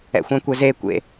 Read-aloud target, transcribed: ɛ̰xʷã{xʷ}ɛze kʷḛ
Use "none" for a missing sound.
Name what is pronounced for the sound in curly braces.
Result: kʷ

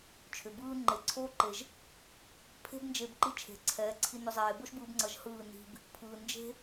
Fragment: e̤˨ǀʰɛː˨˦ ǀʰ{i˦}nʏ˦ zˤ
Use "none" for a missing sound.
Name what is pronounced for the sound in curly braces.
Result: i˦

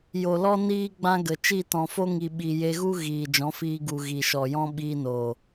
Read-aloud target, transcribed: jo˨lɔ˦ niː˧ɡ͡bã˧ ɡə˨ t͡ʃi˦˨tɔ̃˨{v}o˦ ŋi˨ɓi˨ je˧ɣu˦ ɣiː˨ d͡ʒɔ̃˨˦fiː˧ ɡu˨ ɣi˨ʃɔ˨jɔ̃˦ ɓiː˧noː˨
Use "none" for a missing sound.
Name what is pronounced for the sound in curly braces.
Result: f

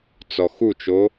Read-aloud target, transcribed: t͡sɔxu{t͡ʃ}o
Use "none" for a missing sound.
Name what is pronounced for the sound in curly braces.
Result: t͡ʃ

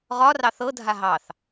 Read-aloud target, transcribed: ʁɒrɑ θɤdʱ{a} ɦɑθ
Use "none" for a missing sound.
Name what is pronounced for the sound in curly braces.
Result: a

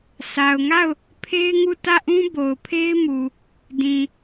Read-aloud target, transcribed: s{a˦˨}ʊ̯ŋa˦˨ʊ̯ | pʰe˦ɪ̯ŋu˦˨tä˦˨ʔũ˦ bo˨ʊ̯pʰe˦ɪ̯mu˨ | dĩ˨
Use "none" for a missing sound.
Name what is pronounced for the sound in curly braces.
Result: a˨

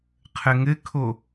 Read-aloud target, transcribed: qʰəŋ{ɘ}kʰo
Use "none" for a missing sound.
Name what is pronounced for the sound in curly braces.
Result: ɘ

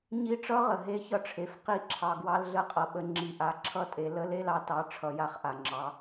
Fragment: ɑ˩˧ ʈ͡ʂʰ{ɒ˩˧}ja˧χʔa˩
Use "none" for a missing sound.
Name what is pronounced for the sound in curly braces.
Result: ʌ˩˧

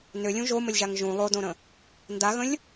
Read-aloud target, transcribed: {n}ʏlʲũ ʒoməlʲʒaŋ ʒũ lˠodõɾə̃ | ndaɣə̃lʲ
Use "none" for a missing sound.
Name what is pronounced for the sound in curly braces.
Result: n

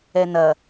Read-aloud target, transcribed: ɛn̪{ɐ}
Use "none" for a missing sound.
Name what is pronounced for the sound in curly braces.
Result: ɐ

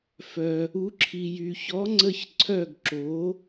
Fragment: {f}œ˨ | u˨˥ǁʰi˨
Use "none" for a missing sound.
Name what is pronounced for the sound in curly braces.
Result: f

